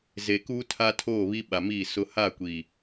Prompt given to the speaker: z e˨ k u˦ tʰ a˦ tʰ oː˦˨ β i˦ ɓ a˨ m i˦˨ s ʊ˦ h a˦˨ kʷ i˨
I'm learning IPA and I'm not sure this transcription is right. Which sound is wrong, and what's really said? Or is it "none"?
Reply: none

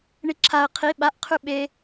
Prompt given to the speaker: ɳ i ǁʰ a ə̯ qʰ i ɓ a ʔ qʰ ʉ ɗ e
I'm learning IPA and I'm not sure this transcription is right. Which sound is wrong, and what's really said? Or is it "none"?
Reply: ɗ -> ɓ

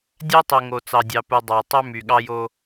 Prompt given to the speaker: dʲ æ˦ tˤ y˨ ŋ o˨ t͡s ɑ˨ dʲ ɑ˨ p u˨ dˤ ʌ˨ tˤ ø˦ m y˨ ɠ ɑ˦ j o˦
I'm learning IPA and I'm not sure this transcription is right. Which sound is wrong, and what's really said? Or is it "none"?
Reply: ʌ˨ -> ɑ˨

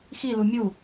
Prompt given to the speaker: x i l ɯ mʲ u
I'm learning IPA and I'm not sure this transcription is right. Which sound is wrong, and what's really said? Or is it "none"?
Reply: ɯ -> u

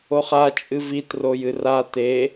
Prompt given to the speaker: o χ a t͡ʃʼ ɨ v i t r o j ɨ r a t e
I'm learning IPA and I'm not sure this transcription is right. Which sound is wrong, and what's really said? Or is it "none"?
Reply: none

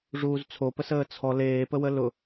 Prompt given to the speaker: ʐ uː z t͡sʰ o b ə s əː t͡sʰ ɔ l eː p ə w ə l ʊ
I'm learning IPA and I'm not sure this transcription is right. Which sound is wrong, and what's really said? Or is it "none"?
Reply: b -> p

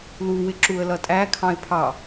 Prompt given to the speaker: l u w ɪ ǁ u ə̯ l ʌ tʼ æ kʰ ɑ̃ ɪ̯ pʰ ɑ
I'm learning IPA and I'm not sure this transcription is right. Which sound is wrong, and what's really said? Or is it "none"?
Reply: none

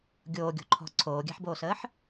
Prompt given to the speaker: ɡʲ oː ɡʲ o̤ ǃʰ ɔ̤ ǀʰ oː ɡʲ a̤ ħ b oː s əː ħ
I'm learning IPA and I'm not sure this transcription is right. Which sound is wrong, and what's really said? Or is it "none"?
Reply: none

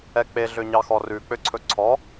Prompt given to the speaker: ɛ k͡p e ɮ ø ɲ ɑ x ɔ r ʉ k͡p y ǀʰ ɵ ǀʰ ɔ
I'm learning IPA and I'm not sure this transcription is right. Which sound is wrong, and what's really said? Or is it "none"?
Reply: y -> ø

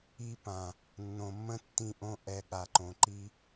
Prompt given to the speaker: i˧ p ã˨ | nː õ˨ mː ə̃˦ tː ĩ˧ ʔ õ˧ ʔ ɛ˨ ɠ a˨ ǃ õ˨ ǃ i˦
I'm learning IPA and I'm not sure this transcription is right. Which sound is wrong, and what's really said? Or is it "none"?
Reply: none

